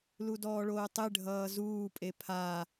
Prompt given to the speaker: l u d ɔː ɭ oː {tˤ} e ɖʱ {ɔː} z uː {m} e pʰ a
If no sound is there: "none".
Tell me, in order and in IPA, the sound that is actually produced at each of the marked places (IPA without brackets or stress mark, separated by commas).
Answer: tˤ, ʌː, pʼ